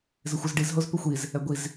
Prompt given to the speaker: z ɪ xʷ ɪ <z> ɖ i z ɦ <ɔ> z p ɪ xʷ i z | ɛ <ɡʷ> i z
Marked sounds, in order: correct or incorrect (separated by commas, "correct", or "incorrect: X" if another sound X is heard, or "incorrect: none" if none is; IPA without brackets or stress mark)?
correct, incorrect: o, correct